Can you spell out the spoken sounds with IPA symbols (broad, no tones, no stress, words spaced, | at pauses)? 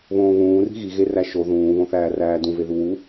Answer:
βõːβũːri̤ ɣiɣeræ ʃo ðũːβõθæːræː dũve ðuwu